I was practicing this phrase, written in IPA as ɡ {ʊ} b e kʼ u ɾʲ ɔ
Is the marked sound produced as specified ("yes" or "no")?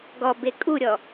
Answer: no